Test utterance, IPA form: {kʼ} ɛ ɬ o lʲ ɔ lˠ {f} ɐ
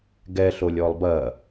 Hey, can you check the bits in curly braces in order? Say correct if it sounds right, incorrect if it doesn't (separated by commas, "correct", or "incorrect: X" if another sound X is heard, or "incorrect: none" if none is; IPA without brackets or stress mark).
incorrect: ɡ, incorrect: b